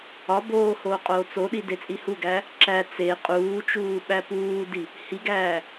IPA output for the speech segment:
ɒ b oː h oː qʼ oː t͡s o ɗ i d e t͡sʼ i h u ɡ æ | ǁ æ t͡s e qʼ uː t͡ʃ uː ɓ æ p uː d i | h i ɡ æː

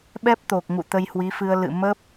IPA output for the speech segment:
ɓ ɛ˦˥ p̚ t̪ o˨˩ k̚ ŋ ṵ˧˨ t̪ ə˧ j h w i˨˦ f ɨ˧ ə̯ l ɨ̰˧˨ m ə˦˥ p̚

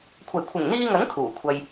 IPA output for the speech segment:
kʷʰ ɐ˨˩ j kʷʰ ɪ˨˩ ŋ n̪ iː˧ ŋ ɐ˨˥ ŋ kʰ uː˨˩ kʷʰ ɐ˧ j

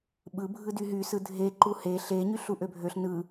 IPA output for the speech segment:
ɓ ɯ bʱ ɯ d y ɦ y s ɯ dʱ e ǃ u h e ɬ e ɲ y ɬ u ʔ ø bʱ ø ɬ n ɯ

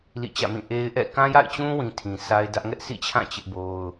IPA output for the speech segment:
l ḭ˦˨ t͡ɕ ä̰˦˨ m ĩ˦˨ ʔ e˦ ɪ̯ ʔ ɛ̰˦˨ k ã˦ j a̰˦˨ ɪ̯ t͡ɕ ũ˦ w ĩ˨ tʰ ĩ˨ s a˦ ɪ̯ d ä˦ ʔ ŋ ɛ˦ ʔ s ḭ˦˨ t͡ɕʰ ã˦˨ t͡ɕ ɪ˦ ʔ b o˦ ʊ̯

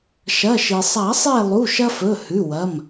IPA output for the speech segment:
ʃ ɐ˩˧˩ ʃ i˩ sˤ a˨˩˦ sˤ e˦˨ lˠ u˩˧˩ ʃ ɐ˦ f ɵ˩˧˩ h ʉ˩˧˩ w ɐ˩˧˩ m

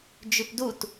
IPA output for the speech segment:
d͡ʒ ʉ p d u t

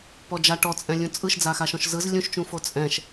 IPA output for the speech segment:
p ɔ d͡ʒ a ʈ ɔ t͡sʼ ɛ̃ lʲ ũ t͡sʼ ɯ ʃ d͡z a x a ʃ ɔ̃ ʃ z ɯ z lʲ ũ ʃ t͡ʃ ũ f o t͡sʼ ɛ̃ ʃ

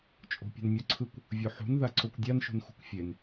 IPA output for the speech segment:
t͡ʃʼ o̤ pʲ ṳ n mʲ ɔ ǀʰ ɯ kʷ | vʲ o ħ ṳ n ð a ǀ o kʷ dʲ a n ʃ ṳ n x ṳ kʷ fʲ e n

